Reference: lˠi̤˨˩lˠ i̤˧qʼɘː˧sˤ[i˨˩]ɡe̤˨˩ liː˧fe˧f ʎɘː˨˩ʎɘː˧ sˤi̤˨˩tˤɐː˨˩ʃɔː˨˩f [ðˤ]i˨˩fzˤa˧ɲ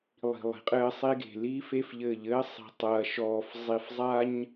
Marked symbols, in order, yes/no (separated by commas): no, no